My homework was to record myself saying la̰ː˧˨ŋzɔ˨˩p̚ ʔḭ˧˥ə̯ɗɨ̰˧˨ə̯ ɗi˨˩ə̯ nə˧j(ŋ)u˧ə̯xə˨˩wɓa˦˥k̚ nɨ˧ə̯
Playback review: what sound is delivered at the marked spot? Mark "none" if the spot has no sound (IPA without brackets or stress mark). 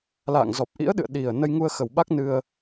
ŋ